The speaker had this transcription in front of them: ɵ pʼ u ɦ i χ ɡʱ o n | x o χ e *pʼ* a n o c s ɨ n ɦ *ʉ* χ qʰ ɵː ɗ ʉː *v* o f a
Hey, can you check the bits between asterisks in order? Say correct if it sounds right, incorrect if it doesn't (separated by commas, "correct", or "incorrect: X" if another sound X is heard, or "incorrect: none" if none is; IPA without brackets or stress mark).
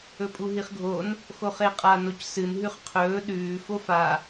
incorrect: qʼ, correct, incorrect: f